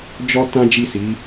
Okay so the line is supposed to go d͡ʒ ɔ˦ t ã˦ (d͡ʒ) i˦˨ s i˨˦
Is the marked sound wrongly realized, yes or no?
no